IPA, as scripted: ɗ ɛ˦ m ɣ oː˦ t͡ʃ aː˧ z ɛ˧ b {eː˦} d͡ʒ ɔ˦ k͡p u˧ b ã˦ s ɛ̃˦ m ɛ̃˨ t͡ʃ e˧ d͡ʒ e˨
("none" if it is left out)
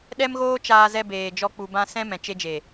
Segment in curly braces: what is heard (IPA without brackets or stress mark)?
eː˨